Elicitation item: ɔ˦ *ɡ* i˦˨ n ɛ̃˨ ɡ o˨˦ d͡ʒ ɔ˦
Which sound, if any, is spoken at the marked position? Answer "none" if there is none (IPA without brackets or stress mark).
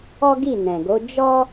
ɡ